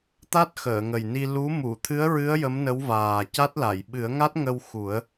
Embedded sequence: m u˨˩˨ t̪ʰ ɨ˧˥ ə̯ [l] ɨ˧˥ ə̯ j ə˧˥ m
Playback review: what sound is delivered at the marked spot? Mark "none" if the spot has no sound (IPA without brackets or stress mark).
ɹ